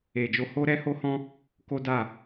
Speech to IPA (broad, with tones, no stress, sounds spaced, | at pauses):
e˨ d͡ʒ o˧ h o˦ ɾ ɛ˦ h o˦ h ɔ̃˦ | k o˦ d a˦˨